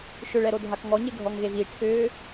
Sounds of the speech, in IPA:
ʃ ʏ ɭ ɛ ɾ o dʱ a k ŋ ɔ ɲ e ɡʱ ɔ ŋ ɣ e v i ʈʰ ʏː

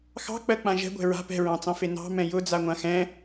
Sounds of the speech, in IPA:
x ɑ̤ k͡p ɜ k͡p ã ʒ ɛ̤ ɡʷ ɛ̤ ɹ a̤ p ɛ̤ ɹ ɑ̃ t͡s ɑ̃ f e n ɑ̤ m ɛ̃ j ʊ d͡z a ŋʷ ã x ɛ̃

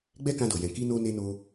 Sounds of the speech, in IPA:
ɡ͡b ɛ˦ k ã˧ d o˨ j ɛ̃˨ k i˧ n o˧ n e˧ n o˦

